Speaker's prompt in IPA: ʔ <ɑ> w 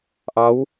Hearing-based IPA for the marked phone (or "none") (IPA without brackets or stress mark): ɑ